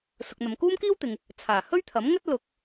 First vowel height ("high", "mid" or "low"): high